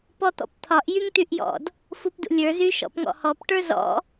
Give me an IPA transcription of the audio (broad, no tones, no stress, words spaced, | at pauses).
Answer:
pɔt̪ɔ̰pt̪ʰɒʔ jyŋt̪yʔjɔ̰d | fupdṵlʲə˞ zyʃɔ̰pŋɔ̰hɔp ʈə˞zɔ̰